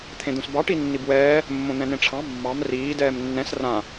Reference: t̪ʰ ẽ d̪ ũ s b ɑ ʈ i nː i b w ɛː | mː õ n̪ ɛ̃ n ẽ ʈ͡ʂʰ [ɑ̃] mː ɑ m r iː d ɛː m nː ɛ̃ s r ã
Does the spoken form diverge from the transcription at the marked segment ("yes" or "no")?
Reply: no